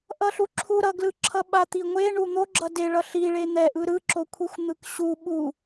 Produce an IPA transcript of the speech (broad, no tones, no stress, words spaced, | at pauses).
ʔʌɬuǁʰu ɾʌɡlɯǁʰʌ ɓat̪iŋʷeɳu n̪oɡ͡ǁʌ deɭʌ ɬi ɭen̪ɛʔɯ ɾɯǁokʷʰixʷ n̪ɯkɕu ɓu